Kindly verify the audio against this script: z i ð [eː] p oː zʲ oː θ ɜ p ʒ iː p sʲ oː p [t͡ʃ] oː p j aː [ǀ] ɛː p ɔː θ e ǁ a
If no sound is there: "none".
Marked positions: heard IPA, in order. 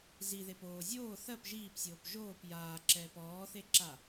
e, ʒ, ǁ

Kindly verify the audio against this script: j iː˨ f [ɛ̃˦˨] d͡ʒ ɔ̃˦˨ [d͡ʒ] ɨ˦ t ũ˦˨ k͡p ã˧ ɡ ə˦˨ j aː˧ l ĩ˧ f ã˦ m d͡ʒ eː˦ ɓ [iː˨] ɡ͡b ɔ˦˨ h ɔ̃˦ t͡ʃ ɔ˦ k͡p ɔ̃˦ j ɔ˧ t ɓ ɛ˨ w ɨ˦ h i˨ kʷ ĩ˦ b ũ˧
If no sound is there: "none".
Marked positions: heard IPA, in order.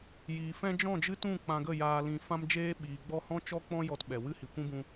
ɛ̃˦, d͡ʒ, iː˨

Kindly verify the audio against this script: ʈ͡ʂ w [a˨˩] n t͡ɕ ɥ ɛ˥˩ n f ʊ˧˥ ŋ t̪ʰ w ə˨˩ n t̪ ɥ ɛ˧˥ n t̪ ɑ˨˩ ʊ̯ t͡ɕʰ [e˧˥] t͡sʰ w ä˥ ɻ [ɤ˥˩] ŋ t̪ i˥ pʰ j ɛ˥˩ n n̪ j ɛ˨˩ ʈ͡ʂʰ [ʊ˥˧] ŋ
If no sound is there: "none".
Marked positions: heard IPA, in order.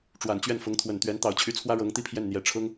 a˨˩, y˧˥, ɤ˧˥, ʊ˥

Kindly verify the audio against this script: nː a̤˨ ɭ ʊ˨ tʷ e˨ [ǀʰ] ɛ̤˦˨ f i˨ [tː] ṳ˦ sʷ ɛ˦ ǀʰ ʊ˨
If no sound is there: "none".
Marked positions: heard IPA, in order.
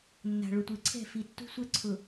ǀʰ, tː

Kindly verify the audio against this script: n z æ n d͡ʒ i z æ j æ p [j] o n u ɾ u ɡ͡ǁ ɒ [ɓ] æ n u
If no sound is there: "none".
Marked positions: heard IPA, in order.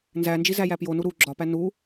j, p

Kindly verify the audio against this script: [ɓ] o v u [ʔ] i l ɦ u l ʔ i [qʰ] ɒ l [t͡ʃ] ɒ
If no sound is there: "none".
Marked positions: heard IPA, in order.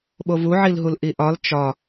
ɓ, ʕ, ʔ, t͡ʃ

